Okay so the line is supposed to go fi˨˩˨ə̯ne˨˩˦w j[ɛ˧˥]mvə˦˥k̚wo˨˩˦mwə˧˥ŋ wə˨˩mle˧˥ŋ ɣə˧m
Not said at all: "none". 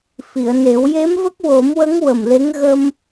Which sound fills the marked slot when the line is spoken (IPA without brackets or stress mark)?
e˧˥